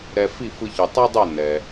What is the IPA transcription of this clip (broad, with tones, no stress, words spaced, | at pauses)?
ɾɛ˧ fi˥˩fɯ˧çɯ˩ tˤa˥dˤo˥˩ nɛ˩